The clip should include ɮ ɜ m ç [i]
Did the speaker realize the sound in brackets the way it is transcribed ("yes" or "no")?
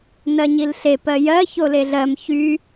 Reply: no